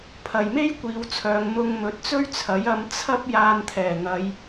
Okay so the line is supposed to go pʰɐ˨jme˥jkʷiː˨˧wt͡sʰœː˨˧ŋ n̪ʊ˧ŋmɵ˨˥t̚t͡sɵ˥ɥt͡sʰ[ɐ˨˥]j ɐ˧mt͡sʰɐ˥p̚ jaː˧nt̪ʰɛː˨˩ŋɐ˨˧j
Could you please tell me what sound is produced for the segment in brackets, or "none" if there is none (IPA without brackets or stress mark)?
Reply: ɐ˨˥